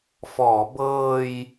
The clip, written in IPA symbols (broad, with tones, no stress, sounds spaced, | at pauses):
f ɔː˩˦ b ɤː˧ j